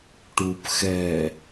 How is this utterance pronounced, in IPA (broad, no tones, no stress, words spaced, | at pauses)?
ʈup xɛ